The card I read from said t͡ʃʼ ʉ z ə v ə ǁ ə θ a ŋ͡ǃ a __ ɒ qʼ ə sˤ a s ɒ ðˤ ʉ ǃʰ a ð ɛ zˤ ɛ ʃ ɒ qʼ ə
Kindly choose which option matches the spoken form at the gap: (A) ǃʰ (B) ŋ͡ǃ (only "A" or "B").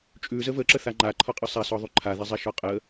A